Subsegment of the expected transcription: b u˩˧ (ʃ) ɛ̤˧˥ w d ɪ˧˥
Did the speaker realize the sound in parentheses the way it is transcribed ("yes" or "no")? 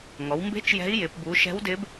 yes